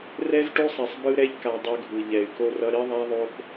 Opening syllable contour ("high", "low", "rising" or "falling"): high